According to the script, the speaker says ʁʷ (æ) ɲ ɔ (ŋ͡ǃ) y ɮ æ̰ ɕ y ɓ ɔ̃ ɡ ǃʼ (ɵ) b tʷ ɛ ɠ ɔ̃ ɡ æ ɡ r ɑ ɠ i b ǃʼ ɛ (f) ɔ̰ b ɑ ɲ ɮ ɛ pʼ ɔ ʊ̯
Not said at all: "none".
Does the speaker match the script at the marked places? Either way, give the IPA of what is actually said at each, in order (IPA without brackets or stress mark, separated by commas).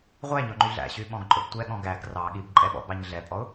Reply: æ, ŋ͡ǃ, ɵ, ɓ